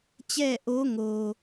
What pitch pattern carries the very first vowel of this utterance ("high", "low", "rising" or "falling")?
falling